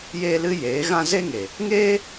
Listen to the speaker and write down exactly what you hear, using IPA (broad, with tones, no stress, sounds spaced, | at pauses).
j eː˦ l ɨ˦ j eː˨˦ ɣ ã˦ z e˦ ŋ e˨ | ŋ eː˦